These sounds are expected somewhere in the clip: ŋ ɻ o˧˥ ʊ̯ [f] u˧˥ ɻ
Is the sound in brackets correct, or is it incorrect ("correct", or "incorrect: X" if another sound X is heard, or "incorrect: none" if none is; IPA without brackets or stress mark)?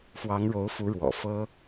correct